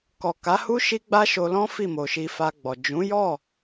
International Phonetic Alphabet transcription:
kɔ˨ ka˨˦hu˦ ʃi˦ɡ͡ba˦ʃo˧lɔ̃˦ fi˦˨mo˨ʃi˧ fa˧ɡ͡bɔ˨ d͡ʒũ˨˦jɔ˦˨

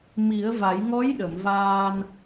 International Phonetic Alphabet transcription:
mi˨˩˦ə̯va˨˩˦j ŋɔ˧˥jɗə˨˩˨mvaː˧n

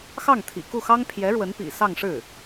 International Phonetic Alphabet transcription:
xɑ˥˩ŋt̪ʰḭ˨˩ku˥˩xɑ˥ŋ pʰjɛ˧˥ɻwə˧˥n pḭ˨˩ sɑ˥˧ŋʂɻ̩˥˩

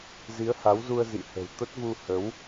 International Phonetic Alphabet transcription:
zi˨˦ə̯ha˨˦wzu˧ə̯ zḭ˧˨hə̤˨˩w t̪ə˦˥t̚vu˧ hə˨˦w

